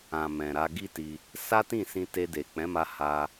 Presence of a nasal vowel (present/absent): present